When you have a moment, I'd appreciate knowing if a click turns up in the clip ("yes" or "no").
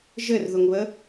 no